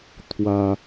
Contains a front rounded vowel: no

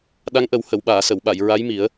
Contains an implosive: yes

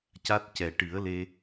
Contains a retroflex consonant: yes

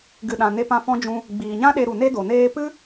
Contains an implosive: yes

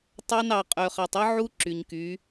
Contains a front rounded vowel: yes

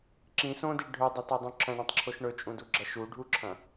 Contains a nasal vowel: yes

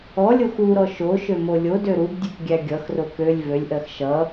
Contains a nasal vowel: no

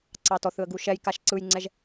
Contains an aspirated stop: no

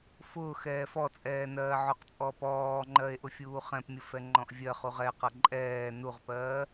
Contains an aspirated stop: no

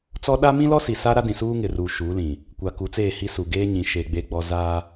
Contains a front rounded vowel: no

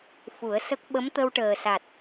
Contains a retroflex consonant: yes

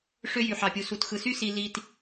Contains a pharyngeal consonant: yes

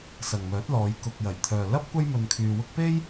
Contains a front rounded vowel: yes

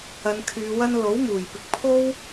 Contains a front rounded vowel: yes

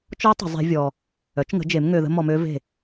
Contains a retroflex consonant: no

